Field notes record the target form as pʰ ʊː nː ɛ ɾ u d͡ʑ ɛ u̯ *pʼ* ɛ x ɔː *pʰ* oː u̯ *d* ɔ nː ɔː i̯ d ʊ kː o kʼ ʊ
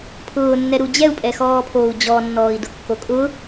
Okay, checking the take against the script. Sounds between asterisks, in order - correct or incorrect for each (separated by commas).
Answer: correct, correct, incorrect